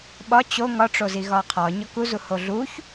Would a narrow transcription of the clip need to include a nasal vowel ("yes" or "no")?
no